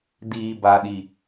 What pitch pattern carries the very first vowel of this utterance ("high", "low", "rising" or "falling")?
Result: low